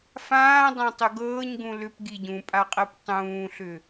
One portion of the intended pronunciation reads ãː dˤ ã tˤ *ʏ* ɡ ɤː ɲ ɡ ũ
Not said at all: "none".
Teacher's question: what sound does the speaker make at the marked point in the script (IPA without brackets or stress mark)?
ʏ